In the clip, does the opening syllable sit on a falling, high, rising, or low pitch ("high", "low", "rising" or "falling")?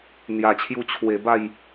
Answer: low